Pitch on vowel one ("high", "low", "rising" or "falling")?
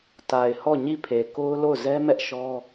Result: low